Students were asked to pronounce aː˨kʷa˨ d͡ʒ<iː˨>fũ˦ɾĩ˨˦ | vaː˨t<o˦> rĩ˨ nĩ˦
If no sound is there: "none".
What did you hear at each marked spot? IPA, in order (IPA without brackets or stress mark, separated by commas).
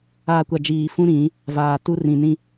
iː˨, u˦